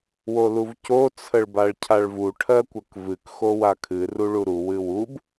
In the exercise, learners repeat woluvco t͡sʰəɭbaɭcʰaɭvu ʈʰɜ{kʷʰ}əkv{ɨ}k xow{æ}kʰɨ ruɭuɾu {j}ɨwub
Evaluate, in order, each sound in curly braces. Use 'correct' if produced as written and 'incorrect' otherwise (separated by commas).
incorrect, correct, incorrect, incorrect